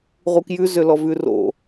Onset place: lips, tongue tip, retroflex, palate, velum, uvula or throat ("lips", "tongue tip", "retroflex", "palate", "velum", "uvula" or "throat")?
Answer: uvula